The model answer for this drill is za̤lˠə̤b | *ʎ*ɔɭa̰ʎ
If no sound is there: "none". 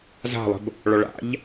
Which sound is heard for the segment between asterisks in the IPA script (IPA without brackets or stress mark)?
ɭ